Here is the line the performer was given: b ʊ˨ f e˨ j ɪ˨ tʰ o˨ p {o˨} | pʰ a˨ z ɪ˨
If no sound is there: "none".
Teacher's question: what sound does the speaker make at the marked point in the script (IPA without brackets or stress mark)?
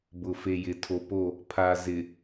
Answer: o˦˨